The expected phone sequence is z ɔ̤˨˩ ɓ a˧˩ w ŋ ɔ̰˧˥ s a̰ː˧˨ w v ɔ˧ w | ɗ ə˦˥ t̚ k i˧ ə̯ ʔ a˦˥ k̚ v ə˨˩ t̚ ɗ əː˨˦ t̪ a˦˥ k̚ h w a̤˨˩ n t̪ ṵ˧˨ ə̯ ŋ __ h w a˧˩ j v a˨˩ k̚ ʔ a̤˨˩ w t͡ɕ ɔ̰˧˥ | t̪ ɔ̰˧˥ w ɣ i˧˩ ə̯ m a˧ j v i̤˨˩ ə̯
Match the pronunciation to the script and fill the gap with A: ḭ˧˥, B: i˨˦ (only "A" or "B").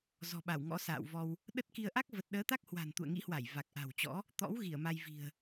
A